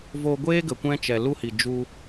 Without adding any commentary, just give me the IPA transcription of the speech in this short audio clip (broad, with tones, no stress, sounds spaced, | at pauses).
v o˧ ɡʷ eː˦ ɡ ə˨ kʷ ɛ̃˦ t͡ʃ ɛ˨ l u˦ h i˨ d͡ʒ u˧